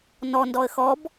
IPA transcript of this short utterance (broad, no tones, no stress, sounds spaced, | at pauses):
n ɔ n d ɔ ə̯ x ɔ b